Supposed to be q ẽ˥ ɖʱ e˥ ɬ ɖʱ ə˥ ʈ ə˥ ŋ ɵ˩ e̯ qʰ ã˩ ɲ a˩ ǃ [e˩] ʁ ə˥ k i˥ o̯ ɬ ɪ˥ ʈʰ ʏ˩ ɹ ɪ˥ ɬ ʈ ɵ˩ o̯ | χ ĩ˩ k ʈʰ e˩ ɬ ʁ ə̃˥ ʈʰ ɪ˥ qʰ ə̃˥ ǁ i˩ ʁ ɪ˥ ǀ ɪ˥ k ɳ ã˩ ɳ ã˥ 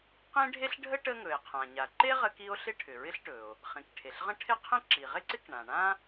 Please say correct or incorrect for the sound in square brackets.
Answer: incorrect